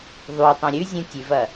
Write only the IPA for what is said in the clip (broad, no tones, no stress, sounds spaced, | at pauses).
ðˤ u tˤ õ ɾʲ ʉ zʲ ũ tʲ ʉ v ɐ